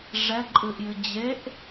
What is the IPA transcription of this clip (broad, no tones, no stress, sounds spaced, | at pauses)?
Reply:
ʐ ɛ ǃʼ ɨ ʔ j ɨ d͡ʑ e ʔ